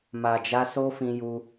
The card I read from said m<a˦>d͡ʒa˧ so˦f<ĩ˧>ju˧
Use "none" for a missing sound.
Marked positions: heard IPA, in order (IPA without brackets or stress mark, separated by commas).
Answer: a˨, ĩ˧